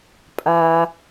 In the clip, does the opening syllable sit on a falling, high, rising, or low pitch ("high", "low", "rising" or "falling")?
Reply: low